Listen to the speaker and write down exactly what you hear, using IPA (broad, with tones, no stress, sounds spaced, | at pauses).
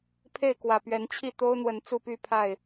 pʰ e˥˨ ɪ̯ k w ä˨˩ p ɥ ɛ˨˦ n t͡ɕʰ i˥˨ t̪ o˦ ʊ̯ n̪ w ə˨˦ n t͡s u˥˨ p y˥˨ pʰ a˥˨ ɪ̯